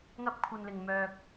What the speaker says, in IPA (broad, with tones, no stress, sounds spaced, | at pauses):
ŋ ɐ˥ p̚ kʷʰ ɐ˧ n l ɪ˨ ŋ m œː˧ k̚